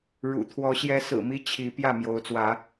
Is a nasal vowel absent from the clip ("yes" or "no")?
yes